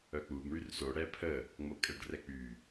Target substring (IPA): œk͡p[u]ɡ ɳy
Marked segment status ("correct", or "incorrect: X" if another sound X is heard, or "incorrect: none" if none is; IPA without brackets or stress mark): correct